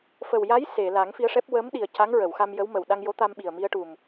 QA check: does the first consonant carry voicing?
no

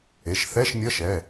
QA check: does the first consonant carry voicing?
no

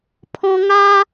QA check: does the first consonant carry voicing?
no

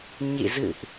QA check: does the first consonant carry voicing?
yes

